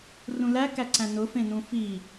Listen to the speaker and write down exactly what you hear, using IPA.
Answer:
rũlækæǀæ̃ nʊfẽ nũfi

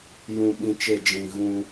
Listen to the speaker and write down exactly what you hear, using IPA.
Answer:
jũ˨ɓĩ˨ t͡ʃe˦˨ d͡ʒĩ˨ ɣũ˦

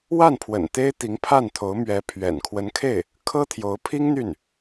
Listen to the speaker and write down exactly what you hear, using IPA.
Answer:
wa˥˩npʰwə̰˨˩n t̪e˥ɪ̯ t̪i˧˥ŋpʰa˥˩nt̪ʰo˧˥ʊ̯ mɥɛ˧˥pʰɥɛ̰˨˩n kʰwə˧˥nkʰe˥˩ɪ̯ | kʰɤ˥t̪ʰjo˧˥ʊ̯pʰi˥ŋ n̪y˥˩n

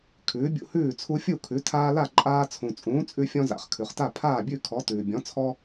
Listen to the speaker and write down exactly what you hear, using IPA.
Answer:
kʰʉː˨˥bʲṵ˦hʉː˥˨ t͡sʰu˦fʲu˥˨kʰʉ˨˥ tʰaː˦la˥˨ ǃʼaː˦ t͡sʰũ˨ t͡sʼũː˨˥ t͡sʼʉ˦fʲɔ̃˦za̰˨χ kʰʉ˨χta˥˨ pʰaː˥˨bʲʉ˥˨ kʰɔ˨˥tʉː˨ bʲɔ̃˨˥t͡sʰɔ˦

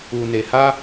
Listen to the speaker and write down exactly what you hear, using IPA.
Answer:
u˨ne˨ ha˧

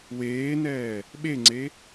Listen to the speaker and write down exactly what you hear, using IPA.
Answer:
weːnɛː | ɓeŋ͡ǀe

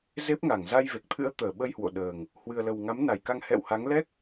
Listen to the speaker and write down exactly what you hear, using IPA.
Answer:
ze˦˥p̚ŋa˧˩ŋ za˧jve˨˩k̚t̪ʰɨ̰˧˥ə̯t̪əː˧˩ ɓə˧jhwo̰˧˨ ɗəː˨˩ŋ | hwɨ˨˩ə̯lə˨˩w ŋa˨˦mna˨˩jka˧ŋ hɛ̰˧˨wha˨˦ŋ lɛ˦˥k̚

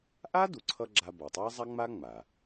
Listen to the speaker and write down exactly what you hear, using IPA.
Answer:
ʔa˥du˩ǀʰʌ˧ ɡ͡ǁa˧bʌ˩tˤa˥zˤa˥ ŋ͡ma˥ŋ͡ma˩

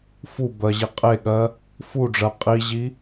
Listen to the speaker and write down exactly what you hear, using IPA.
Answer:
fu bɜʑiqʼeɠɜ | fuɖ͡ʐɜ qʼiʑi

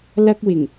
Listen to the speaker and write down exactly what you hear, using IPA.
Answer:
lɐ˥k̚wɪ˨˩ŋ

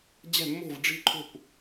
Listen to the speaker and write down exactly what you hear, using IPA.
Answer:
d͡ʑɛ̤˥˧mːo̤˥˧vɖ͡ʐi̤˥˧ǃʰo̤˥˧kʷ

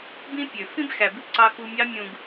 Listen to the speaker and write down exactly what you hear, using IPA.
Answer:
bĩ˦pʲø˨ fĩ˦bxæ˨ bɯ˦ǀɑ˧xu˧mʲɑ˦ mʲũ˧ɡ

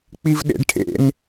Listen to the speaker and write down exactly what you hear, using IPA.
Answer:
k͡pivɗḛɖʈʰḛn

